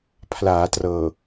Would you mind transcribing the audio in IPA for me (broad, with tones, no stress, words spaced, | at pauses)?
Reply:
pʰlaː˩˦trɤː˨˩